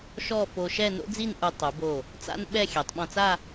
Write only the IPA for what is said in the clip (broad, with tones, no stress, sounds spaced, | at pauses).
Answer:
ʃ ɔ˥˧ f o˧ ʃ ɛ˥˧ n o̰˥ d͡z i˥˧ n ʔ u˧ tˤ u˩˧ b o˧˩ | t͡s a̰˥ n ɓ ɛ˥˧ xʲ ɛ˩˧ tˤ ɓ ɔ̃˧ t͡s a˥˧